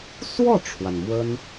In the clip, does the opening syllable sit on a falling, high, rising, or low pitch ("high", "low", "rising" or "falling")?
falling